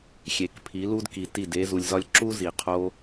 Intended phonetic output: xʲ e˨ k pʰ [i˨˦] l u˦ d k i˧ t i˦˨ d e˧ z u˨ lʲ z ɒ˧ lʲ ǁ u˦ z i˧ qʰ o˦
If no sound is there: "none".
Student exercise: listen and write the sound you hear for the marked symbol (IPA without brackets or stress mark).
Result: i˨˦